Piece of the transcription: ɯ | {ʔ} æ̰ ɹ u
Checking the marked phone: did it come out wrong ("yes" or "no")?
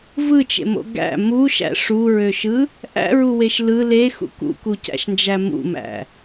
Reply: no